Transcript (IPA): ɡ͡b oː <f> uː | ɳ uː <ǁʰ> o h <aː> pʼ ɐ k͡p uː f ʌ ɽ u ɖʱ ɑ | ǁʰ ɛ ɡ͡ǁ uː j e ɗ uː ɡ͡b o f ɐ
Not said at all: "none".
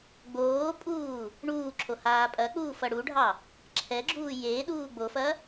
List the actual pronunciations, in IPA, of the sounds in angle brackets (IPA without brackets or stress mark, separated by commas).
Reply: pʼ, ǁʰ, aː